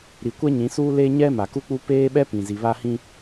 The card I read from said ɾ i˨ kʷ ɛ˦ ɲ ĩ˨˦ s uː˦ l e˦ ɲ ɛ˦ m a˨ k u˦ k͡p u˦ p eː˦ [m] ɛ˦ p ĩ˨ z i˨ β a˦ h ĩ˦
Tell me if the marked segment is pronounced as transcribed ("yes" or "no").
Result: no